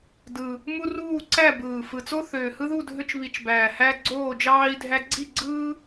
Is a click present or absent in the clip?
present